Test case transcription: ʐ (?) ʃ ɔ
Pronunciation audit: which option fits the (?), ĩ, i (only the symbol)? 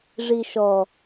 i